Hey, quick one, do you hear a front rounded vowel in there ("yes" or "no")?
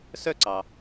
yes